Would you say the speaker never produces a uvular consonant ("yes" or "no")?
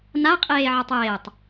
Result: no